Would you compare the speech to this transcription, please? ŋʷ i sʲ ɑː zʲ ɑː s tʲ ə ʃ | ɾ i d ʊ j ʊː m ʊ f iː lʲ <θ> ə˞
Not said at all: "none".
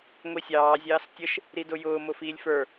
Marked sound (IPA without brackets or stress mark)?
f